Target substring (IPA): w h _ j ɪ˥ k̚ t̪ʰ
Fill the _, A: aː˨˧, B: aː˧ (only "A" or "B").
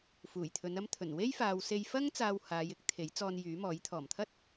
A